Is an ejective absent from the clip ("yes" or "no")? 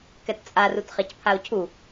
no